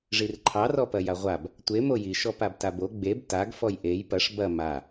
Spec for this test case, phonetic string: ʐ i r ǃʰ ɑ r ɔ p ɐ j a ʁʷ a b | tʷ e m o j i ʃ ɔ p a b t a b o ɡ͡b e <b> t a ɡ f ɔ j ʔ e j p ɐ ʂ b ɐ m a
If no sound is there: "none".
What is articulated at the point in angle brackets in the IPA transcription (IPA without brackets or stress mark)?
b